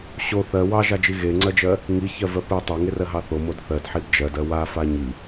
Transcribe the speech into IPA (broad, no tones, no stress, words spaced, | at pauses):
ɕo θɜ wɑʒad͡ʒi ɣeŋ͡ǀɜd͡ʒɜ | ŋiçɜvɜ pe tˤɜŋerɜɦɑ θomod θɜdħid d͡ʒɜdɜ wafa ɲi